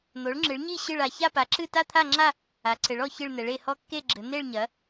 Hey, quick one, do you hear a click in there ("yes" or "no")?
yes